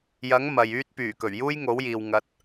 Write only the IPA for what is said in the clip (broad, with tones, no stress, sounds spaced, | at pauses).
j ɐ˨˥ ŋ m ɐ˨ j yː˥ t̚ p yː˨˩ k ɵ˨˩ ɥ j uː˥ j ŋ o˨˥ w j iː˨ w ŋ ɐ˨˥ t̚